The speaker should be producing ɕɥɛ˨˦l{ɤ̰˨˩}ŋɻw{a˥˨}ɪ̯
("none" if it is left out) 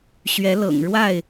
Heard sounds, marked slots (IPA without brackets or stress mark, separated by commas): ɤ̰˨˩, a˥˨